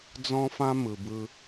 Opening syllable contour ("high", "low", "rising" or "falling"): high